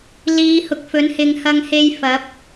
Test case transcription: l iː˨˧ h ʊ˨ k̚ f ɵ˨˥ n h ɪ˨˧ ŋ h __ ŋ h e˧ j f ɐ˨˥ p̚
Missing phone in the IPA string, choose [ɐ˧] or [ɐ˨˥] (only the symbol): ɐ˧